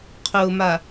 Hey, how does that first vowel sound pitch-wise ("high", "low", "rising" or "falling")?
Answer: low